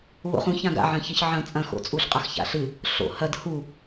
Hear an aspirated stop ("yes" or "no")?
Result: no